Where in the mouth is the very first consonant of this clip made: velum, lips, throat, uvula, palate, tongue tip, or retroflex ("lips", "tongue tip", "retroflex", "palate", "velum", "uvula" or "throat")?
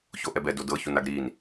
palate